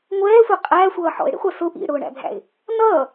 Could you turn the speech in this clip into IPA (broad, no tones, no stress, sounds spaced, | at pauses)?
ŋʷ ɛː sʷ æ qʼ æː sʷ ʌː ħ ɔ̰ ɪ̯ ɽ ḭ χʷ æ s ʊ ʔ ḭ ɽ ʊː ɳ æ̰ bʱ æ̰ ɪ̯ | n ʌː